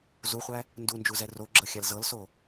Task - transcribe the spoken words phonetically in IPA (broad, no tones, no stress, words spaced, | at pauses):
zuχʷæ | ndund͡ʒuzɛ roɡ͡ǁɤxʲal zɤlso